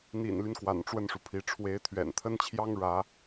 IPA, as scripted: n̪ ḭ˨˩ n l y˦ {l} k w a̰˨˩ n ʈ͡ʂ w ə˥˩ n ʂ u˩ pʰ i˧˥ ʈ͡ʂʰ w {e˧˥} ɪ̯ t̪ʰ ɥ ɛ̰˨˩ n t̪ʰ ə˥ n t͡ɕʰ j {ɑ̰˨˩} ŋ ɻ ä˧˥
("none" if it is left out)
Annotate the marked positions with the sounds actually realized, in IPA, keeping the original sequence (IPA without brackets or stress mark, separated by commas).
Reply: n, e˧˥, ɑ˥